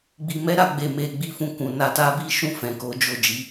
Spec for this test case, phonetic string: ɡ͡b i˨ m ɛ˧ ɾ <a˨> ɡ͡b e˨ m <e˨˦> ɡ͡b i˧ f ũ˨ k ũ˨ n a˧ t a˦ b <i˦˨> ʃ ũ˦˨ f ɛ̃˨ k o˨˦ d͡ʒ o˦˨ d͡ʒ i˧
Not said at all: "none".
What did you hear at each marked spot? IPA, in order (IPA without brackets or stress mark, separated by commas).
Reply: a˨, e˨, i˦